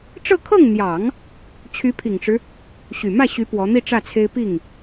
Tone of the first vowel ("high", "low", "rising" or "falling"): falling